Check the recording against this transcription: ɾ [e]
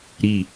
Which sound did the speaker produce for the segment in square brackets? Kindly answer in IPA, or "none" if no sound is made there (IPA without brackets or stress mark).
i